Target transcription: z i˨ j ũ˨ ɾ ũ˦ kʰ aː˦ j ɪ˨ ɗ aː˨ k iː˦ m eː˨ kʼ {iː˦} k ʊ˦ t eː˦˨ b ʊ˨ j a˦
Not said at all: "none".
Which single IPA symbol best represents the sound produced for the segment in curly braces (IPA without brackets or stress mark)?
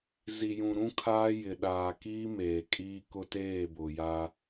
iː˦